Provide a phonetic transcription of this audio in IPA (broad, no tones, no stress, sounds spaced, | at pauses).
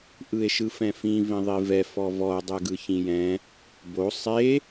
ʔ ɯ e̯ ʃ ɯ f ɛ̃ f ĩ v ĩ ðˤ i v ɛ f ɔ v ɔ o̯ dˤ ɛ ɡ ɯ ç ĩ j ɛ̃ | b o sˤ e